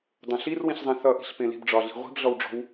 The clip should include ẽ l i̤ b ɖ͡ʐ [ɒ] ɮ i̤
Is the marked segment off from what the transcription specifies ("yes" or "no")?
no